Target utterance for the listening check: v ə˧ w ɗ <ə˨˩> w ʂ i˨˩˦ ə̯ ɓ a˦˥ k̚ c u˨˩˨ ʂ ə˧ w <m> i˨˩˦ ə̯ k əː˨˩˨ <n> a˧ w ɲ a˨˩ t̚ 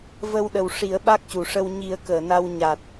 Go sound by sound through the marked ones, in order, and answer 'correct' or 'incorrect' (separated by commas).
correct, incorrect, correct